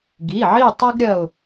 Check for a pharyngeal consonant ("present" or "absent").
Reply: present